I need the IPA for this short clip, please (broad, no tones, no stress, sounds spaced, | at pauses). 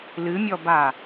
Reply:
l ɨ mʲ ɔ b a